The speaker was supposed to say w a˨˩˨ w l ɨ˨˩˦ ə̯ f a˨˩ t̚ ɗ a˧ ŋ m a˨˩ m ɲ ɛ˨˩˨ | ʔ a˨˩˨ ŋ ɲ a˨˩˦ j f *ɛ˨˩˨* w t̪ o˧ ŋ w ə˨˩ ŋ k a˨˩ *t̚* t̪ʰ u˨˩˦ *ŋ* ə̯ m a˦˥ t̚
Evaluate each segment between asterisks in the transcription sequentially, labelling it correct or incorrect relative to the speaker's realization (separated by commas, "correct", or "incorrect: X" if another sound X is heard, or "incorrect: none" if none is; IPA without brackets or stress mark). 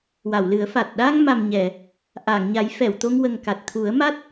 correct, correct, incorrect: none